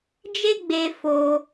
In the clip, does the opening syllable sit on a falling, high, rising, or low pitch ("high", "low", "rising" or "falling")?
high